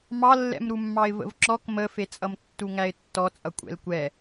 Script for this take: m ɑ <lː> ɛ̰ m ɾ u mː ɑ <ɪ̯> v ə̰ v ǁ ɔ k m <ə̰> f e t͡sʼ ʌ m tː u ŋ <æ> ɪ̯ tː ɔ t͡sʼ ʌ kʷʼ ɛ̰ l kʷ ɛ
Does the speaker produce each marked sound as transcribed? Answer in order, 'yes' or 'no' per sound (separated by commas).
yes, yes, no, yes